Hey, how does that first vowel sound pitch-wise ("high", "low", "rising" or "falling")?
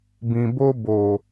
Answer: low